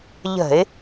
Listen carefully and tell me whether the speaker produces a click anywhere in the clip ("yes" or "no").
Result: no